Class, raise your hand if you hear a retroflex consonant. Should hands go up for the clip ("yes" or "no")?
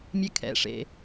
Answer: yes